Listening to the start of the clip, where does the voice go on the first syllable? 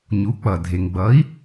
rising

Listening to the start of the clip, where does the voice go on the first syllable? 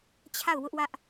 falling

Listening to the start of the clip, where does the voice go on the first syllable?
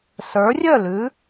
rising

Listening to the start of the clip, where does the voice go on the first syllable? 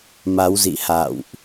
rising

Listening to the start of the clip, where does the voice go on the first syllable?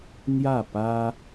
falling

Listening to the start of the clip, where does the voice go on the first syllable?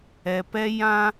low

